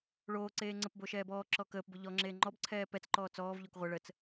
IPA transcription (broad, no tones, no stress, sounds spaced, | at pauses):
ɭ oː ǀ eː ŋ͡ǀ ə p b o ʃ ɛː b ɔː ǁ ɔ k əː p b ʊ ʎ ɔ ŋ͡ǁ eː ŋ͡ǃ ɔ b ǀʰ ɛː p ɛ t͡s ǃ ɔː t͡s ɔː v ʎ o k ʁʷ ɛ ɭ ə t͡s